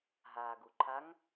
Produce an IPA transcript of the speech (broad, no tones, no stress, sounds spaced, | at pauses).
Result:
ɦ aː ɡ u ǃʰ a ŋ